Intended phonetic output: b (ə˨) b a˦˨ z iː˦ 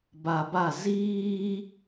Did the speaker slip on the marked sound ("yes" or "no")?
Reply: yes